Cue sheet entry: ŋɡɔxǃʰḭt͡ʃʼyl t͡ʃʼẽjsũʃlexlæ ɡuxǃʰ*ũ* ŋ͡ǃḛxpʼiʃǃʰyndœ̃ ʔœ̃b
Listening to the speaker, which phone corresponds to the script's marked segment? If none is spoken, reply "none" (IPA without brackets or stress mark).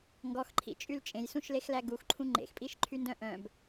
ũ